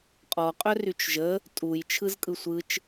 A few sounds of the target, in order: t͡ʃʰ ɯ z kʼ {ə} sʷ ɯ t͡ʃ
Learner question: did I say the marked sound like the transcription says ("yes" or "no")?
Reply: no